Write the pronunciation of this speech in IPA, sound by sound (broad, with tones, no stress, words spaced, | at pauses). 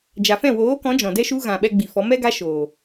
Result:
d͡ʒa˨fɛ̃˦˨woː˨˦kɔ̃˨˦ d͡ʒɔ̃˨dɛ˦ʃu˦ɣã˨ ɓɛ˧ɡ͡bi˨ fɔ˨˦mɛ˦ɡa˦ ʃoː˨